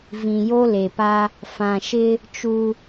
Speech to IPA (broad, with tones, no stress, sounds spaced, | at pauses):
v ĩ˨ j o˦ l e˨ p a˦ | f ã˨ ʃ ɪ˦ | t͡ʃ u˦